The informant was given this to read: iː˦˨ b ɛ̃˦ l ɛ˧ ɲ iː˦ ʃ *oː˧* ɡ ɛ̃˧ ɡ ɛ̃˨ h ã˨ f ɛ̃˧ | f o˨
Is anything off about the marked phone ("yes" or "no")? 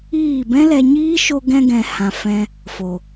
yes